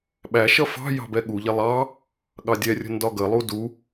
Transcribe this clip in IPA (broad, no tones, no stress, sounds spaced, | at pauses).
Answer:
ɓ æ ʃ ʌ f ɑ̤ j ɑ̤ b ɛ ɠ u ʎ ɛ lˠ ɑ | ɠ ɑ dʲ ɛ rʲ ə̤ n d ɒ ɡ ə lˠ u d u